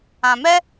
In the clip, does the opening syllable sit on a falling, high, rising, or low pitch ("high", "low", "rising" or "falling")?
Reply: low